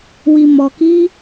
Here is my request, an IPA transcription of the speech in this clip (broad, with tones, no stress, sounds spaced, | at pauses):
w i˧ m ɔ˧ k i˦